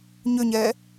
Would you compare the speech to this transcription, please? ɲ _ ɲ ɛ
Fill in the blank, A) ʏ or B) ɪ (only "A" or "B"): A